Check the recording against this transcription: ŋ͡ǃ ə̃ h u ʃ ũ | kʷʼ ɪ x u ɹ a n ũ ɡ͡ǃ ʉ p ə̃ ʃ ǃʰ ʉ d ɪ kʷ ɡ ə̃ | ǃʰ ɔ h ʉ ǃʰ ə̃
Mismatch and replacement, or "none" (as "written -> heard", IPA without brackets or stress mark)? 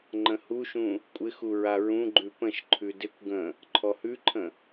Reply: n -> ɹ